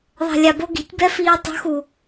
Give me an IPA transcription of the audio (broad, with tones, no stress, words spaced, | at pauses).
ðˤɛ̤˨lʲa˨bo˧ ɡi̤˨˦tʲbɛ˦fiː˧w tˤṳ˨˦xu˨